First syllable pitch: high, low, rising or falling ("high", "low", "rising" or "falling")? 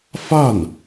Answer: falling